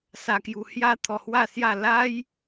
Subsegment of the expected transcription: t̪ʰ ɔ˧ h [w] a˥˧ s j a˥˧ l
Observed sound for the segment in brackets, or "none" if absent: w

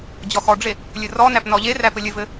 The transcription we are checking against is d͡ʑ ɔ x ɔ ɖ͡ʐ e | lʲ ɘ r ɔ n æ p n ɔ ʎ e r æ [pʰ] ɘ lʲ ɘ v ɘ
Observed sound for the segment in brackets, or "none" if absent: p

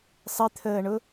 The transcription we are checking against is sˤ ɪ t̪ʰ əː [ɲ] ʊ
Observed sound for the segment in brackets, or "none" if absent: ɳ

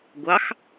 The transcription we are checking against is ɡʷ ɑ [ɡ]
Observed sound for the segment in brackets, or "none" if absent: x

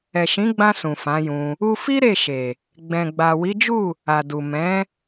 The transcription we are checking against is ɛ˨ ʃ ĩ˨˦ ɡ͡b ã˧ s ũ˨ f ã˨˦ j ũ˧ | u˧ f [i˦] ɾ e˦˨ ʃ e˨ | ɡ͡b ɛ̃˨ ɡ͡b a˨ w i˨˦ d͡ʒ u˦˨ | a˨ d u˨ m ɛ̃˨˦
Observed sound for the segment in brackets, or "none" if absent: i˦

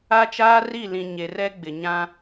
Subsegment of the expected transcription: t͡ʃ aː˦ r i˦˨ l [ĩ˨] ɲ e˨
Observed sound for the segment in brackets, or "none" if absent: ĩ˨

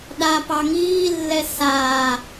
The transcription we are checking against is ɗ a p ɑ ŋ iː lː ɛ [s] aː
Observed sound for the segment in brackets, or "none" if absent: s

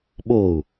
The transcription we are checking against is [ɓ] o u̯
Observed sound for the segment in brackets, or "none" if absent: ɓ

